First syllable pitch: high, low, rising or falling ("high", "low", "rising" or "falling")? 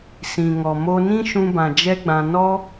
low